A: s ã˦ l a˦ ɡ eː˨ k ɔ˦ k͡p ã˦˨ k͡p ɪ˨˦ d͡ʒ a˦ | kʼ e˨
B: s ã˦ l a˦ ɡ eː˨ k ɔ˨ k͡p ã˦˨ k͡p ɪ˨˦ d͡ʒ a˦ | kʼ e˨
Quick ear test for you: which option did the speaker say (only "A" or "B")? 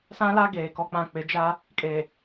A